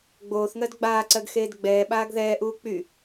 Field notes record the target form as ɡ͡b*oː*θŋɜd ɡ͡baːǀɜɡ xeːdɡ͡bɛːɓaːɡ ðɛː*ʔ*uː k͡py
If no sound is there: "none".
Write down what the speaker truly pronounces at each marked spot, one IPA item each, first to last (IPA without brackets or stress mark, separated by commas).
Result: oː, ʔ